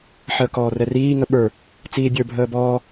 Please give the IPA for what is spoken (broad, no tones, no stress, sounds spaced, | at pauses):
ħ əː k ɔː r ɛ r iː ŋ ə ɓ ə˞ | t͡s iː bʲ ə˞ bʱ əː b ɔː